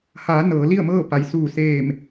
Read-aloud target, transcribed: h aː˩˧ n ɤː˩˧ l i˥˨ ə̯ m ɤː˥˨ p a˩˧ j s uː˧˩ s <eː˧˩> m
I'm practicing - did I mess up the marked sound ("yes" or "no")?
no